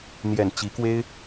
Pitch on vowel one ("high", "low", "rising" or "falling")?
low